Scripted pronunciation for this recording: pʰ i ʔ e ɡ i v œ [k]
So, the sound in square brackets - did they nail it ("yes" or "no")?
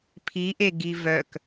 yes